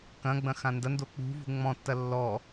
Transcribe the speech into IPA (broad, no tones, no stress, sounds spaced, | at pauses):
k ɐ̃ ɡ͡b ɐ̃ x ã n d ɐ n d o k͡p ṳ v ṳ ŋ͡m ɔ̃ tː ɐ lː ɔ